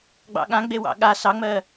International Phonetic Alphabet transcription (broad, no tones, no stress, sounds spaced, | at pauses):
ɡ͡b ɑ̰ ɠ ã ɡ͡b e w ɑ̰ ɠ a s ɑ ŋ͡m ɜ